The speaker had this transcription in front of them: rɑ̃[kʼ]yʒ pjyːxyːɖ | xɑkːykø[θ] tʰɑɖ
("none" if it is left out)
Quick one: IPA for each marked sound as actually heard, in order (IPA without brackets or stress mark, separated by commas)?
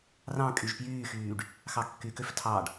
kʼ, f